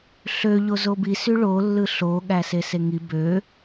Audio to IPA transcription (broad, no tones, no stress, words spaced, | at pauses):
ɬø ʎozobisy ɭolːɯ ɬo ɠæseseŋi bø